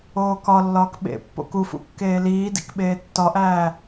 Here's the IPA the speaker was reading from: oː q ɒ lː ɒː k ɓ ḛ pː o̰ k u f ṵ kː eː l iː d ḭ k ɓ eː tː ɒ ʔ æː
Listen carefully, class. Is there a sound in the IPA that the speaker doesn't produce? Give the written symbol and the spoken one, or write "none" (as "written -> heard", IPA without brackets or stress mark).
q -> k